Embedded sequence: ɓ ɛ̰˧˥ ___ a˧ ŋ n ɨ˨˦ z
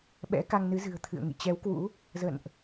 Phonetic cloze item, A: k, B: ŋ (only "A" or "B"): A